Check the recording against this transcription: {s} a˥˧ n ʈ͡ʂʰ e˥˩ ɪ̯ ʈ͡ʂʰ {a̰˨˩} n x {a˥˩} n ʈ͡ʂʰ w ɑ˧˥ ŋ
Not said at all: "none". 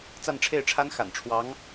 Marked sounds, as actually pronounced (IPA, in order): t͡s, a˥, a̰˨˩

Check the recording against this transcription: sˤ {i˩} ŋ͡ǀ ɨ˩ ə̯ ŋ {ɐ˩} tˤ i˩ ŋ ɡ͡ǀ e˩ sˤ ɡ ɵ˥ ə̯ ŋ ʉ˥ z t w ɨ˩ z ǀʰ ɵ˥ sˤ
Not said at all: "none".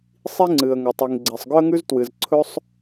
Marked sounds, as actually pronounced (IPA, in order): i˥, ɐ˩

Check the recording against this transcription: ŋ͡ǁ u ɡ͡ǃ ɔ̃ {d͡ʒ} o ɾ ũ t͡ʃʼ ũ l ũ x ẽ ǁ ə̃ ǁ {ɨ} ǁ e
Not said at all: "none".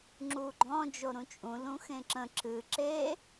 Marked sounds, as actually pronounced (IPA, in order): d͡ʒ, ɨ

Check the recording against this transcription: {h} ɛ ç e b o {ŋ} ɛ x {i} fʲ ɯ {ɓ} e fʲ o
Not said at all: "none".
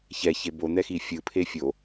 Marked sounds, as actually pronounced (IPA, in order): ç, n̪, i, pʰ

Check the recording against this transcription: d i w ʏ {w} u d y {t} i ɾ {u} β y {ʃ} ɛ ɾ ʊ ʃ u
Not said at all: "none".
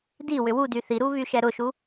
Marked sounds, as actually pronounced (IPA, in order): w, θ, u, ʃ

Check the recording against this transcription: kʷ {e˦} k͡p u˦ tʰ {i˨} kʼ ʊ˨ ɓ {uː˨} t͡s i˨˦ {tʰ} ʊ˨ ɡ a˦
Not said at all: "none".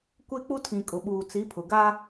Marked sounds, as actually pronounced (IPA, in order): e˦, ĩ˨, uː˨, pʰ

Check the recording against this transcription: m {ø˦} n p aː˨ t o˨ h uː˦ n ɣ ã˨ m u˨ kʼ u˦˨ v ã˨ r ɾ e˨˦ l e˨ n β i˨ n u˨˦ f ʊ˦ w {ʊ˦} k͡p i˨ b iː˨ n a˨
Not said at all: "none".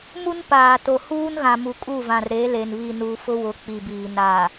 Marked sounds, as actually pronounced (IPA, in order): u˦, ʊ˨˦

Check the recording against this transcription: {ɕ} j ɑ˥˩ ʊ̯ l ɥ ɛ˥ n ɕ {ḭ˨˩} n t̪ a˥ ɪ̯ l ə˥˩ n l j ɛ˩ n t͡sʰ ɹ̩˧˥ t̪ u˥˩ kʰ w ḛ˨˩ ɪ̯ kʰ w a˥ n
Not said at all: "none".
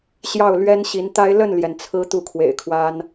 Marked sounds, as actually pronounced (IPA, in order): ɕ, i˧˥

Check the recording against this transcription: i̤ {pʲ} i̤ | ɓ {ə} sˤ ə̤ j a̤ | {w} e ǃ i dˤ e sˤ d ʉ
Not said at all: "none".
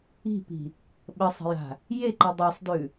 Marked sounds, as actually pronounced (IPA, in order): p, ə, j

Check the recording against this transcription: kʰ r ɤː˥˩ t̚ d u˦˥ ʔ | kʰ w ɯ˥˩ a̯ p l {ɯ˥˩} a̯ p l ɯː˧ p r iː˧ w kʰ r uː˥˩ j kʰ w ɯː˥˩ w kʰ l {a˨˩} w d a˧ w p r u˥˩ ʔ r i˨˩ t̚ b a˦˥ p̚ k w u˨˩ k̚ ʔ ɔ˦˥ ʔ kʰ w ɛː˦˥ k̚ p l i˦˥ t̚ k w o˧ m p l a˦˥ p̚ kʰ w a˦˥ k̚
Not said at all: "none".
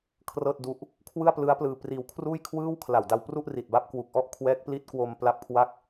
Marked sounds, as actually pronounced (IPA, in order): ɯ˦˥, a˨˩

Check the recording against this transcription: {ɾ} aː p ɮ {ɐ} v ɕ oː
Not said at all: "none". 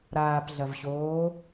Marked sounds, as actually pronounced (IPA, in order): ɾ, ɐ

